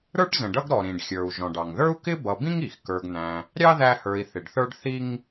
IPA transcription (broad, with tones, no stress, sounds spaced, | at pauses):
ɾ ə˞˥ ʈ z ə̃˩ ɖ ʌ˦ ɡ ɾ ɔ˩ ɾ ĩ˩ ɖ xʲ ə˞˩ u̯ ʒ ɔ̃˩ ɖ ɑ˩ ŋ ð ə˞˥ u̯ k ɪ˥ b ʌ˨ b ĩ˥ ŋ i˩ x k ə˞˨ ɡ n̪ æ̃˨ | ɾʲ ɑ˥ ð æ˦ h ə˞˨ i̯ θ ɪ˩ ɖ θ ə˞˥ ɖ θ i˦ ŋ